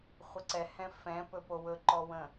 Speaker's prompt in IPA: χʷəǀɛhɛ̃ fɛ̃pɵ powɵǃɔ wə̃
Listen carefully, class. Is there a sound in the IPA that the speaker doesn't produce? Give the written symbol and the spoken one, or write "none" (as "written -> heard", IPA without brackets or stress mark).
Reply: none